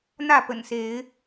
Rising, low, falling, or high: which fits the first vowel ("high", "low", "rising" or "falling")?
falling